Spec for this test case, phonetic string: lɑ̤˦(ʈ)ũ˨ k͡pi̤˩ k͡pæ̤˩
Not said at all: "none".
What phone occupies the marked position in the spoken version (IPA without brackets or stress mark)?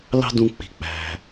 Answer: d